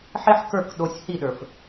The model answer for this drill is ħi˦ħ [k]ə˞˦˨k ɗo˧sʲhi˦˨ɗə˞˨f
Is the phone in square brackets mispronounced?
no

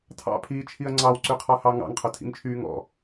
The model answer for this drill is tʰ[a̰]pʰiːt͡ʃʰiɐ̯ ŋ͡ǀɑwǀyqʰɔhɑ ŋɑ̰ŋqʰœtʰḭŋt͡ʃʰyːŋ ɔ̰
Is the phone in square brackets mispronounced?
yes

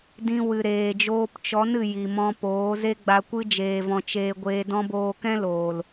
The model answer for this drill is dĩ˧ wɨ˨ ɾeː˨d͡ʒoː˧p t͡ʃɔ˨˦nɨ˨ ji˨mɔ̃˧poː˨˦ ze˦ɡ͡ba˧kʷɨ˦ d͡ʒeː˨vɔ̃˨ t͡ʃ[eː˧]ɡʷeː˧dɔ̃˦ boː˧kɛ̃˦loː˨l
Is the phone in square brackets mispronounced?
no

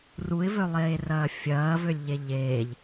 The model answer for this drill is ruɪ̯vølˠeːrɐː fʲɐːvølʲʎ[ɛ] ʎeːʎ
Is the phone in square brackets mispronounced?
yes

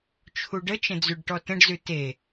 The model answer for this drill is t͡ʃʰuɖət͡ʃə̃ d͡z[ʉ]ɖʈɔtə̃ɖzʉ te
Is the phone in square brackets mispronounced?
no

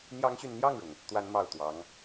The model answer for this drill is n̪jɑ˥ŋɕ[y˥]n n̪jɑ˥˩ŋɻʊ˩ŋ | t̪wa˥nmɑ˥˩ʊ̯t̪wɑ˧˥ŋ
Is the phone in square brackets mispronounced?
yes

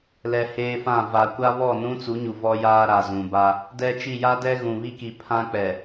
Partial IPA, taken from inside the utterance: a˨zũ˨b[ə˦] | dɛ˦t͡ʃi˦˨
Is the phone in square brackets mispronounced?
yes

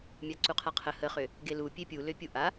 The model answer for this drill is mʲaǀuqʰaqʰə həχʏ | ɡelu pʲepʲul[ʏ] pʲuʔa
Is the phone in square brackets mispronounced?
no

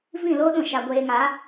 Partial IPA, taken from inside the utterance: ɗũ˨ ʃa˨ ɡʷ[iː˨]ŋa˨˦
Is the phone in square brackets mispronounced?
yes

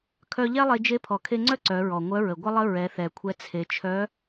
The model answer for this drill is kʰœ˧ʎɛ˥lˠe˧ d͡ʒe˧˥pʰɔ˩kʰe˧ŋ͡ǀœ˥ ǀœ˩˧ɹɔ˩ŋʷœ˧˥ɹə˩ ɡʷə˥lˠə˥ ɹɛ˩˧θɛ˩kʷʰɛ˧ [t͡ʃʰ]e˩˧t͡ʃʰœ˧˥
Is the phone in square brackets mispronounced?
yes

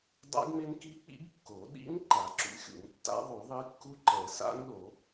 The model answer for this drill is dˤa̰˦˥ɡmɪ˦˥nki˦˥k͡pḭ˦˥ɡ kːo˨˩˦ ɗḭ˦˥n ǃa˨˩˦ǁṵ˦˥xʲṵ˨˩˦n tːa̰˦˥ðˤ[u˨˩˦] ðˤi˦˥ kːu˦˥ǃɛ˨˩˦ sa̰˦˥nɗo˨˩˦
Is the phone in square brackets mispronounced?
no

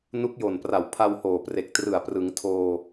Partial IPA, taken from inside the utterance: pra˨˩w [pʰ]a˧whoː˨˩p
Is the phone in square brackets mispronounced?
no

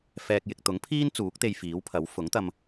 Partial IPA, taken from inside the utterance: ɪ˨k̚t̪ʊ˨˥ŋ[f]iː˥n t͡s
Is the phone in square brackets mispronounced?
yes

